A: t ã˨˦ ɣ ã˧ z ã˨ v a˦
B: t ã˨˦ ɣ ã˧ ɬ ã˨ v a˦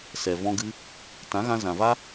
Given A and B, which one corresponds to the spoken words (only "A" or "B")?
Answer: A